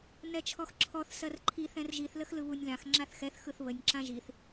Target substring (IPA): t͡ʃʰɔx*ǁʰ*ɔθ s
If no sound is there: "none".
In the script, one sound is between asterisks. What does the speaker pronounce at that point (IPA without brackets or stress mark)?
ǁʰ